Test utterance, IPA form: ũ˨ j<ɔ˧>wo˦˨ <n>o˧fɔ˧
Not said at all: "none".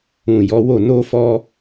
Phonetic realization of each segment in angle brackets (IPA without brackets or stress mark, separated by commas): ɔ˨˦, n